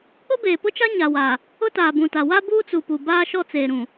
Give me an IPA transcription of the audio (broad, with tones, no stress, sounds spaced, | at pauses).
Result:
k͡p ʊ˦ b eː˨ p ʊ˦ t͡ʃ a˦ ɲ a˨ w a˨ | ʊ˦ t aː˨ b ũ˨ t a˨ w a˦ b uː˦ t͡s u˨ p u˨ b aː˦ ʃ ɔ˦ t͡s eː˨ ɾ ũ˨